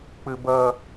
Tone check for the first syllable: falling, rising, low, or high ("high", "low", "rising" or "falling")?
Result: high